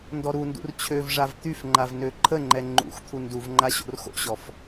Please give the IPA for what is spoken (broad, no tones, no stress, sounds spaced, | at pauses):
n d ɔ ɾ u n d ṵ r t͡ɕʰ ø v ʐ a v t̪ y f ŋ͡ǃ a v n ø ǃʰ ə ŋ͡ǃ ɛ ŋ͡ǃ ṵ x t̪ʰ u n d u v ŋ͡ǃ a ɕ o̰ r x o̰ ɕ ɔ f